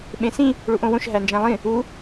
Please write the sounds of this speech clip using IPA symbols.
ɓ ẽ s ĩ | ɭ u ʔ õ w õ ʃ ɦ æ n d͡ʒ æ̃ lˠ ĩ | u

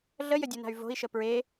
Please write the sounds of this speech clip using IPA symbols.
ɮ ə j ə dʲ u n a̤ y̯ v o̤ i̯ ʃ ə p ɹ e

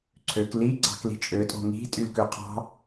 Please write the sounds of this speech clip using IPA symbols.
ǀʰ ø k l i ɡ͡ǀ ɑ̤ k l i̤ t͡ʃʼ ø tʼ o̤ ŋ i̤ tʼ y l k ø qʰ ɑ̤

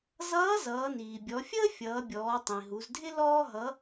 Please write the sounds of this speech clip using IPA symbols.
z ʌː˧˥ z ʌː˩˧ n iː˩ bʲ ɔ˩˧ fʲ əː˥ fʲ ʌː˩˧ bʲ ɔː˩˧ tˤ ĩ˩ ɦ u˩˧ z dʱ ɪ˥ l ɔː˥ ɦ ʌ˧˥

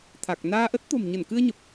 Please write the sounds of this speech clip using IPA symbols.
t̪ʰ a˨˩ k̚ n aː˧ ʔ ə˦˥ t̚ t̪ o̤˨˩ m ɲ ə˧˩ n k ɨ˧ ə̯ ɲ ə˨˩ p̚

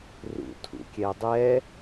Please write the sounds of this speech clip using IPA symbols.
r ṵ tʰ ṵ kʲ ɛ dˤ ɛ

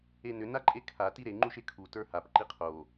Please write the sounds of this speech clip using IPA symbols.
e n ʏ n a ǃʼ e kʰ a t i ɾ e ŋ͡ǃ u ʃ e kʰ u t ə˞ h a p ǃ i qʰ o

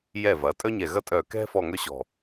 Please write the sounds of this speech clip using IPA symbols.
j ɛ˧˩ v ɐ˩˧ tʼ œ˥ ɲ ɛ˧˩ ɣ ɐ˥ tʼ œ˧˩ k ɛ̤˥ f ɔ˥˧ ŋ œ˥ ɕ ɔ̤˧˩

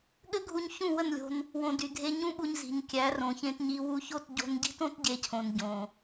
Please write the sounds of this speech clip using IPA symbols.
ɠ ɘ˦ ɡʱ u˧ ɲ ç ũ˦˨ w ə˦˨ n lʲ o̤˧ n | w õ˨ d y˨ dʱ e˧ ɲ ũ˦ ɓ u˧ ɲ z i̤˨ ɲ kʲ æ˨˦ r õ˨ ç ẽ˧ t ɲ i˧ w u˧ ç o˦˨ t ɟ o̤˦ n ɟ i̤˦ t õ˦ t ɟ e˧ cʰ õ˨ n ɟ õ˨

